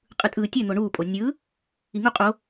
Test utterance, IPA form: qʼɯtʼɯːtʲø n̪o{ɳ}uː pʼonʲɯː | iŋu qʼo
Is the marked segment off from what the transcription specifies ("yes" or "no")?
no